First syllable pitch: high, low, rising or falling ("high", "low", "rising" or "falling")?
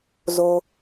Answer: low